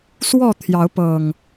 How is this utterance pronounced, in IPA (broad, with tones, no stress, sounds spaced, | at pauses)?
s w ɔ˥˨ t̪ʰ j ɑ˨˦ ʊ̯ p ɤ˨˩ ŋ